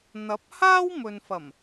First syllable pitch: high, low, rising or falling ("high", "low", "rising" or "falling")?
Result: rising